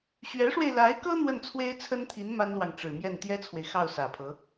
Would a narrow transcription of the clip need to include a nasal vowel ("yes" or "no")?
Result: no